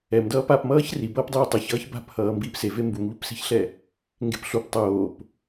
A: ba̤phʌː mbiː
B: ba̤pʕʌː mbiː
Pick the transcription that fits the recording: A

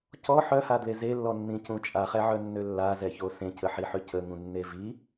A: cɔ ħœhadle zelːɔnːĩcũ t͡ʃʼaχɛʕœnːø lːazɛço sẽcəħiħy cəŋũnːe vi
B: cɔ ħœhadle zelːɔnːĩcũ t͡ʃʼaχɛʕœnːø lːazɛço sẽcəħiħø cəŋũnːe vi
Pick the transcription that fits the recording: B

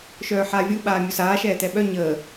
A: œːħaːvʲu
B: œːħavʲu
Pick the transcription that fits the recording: A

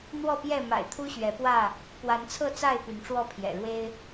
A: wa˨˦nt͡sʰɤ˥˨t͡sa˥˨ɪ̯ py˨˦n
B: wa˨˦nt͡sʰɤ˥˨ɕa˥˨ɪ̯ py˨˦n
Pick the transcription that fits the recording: A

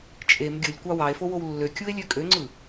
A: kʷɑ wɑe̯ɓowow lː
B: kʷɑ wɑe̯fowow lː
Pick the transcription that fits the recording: B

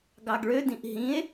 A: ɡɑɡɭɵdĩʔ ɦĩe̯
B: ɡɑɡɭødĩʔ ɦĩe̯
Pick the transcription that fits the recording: B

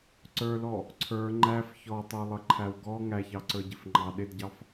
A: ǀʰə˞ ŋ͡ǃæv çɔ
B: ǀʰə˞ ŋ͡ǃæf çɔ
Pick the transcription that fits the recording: B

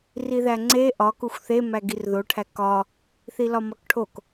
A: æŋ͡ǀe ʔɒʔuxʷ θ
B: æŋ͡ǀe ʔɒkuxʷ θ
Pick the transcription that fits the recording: B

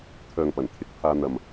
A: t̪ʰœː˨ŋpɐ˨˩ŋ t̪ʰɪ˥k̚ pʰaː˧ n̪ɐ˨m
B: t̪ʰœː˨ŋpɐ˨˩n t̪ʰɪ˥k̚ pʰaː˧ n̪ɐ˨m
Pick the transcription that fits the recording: B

